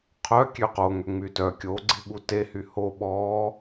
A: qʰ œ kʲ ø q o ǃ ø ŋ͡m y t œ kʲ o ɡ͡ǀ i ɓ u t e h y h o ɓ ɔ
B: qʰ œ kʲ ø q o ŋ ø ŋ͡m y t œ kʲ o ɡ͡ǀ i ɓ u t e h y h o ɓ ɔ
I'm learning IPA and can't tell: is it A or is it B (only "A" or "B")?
B